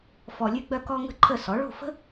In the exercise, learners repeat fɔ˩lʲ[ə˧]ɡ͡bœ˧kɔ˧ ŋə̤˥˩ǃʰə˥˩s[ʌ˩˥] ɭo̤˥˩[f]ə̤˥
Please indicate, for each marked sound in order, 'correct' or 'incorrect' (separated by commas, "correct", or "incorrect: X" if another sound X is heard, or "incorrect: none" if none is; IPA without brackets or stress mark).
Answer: incorrect: ʉ˧, incorrect: ɔ˩˥, correct